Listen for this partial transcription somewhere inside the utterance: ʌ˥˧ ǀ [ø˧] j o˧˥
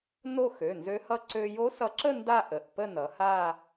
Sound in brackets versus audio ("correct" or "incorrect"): correct